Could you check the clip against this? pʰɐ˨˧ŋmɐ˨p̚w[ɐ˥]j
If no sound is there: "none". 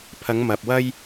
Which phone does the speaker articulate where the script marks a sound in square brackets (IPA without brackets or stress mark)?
ɐ˥